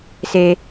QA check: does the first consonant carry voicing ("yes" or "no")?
no